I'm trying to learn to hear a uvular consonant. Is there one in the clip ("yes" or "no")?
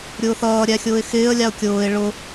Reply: no